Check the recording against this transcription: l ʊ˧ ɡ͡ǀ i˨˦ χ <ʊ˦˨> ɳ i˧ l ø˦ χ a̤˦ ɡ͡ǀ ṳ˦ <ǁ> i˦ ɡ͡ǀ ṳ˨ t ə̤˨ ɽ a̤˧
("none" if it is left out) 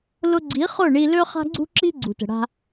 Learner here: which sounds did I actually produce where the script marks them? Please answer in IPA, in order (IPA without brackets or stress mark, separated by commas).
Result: ʊ˦˨, ǁ